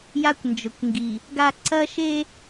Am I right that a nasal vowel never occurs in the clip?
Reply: yes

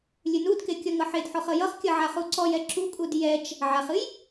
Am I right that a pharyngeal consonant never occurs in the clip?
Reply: no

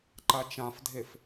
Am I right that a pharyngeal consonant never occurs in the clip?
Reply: yes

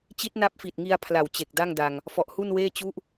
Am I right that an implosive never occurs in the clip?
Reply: yes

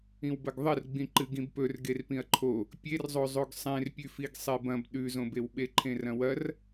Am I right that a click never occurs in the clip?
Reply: no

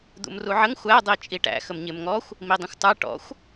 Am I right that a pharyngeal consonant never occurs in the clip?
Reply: no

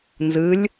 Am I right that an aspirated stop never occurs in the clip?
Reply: yes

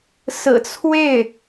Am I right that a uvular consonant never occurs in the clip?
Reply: yes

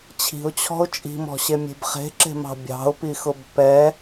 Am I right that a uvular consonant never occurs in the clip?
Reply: no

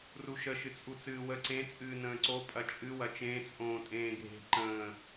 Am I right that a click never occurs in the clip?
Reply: no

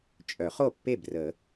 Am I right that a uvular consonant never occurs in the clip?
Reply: no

